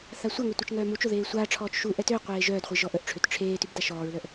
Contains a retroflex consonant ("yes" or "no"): yes